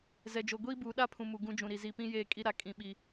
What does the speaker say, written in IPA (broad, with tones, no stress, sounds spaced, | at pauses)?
z ɛ˨ d͡ʒ o˨ ɡʷ iː˦ b uː˨ ɗ a˦ pʰ ũ˨ m u˨ ɡ ũ˨˦ d͡ʒ ũ˨ ɾ i˨ z i˨ p ĩ˦ j eː˦˨ kʼ i˦ ɾ a˦ kʼ ĩ˦ ɓ i˦